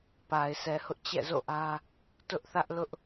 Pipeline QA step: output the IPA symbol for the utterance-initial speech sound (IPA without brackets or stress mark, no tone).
p